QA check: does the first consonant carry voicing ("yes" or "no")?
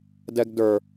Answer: yes